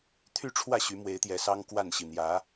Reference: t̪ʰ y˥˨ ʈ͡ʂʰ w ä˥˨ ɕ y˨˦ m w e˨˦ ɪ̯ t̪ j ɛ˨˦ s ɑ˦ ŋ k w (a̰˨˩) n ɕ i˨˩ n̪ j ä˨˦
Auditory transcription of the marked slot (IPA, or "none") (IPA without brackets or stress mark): a˥˨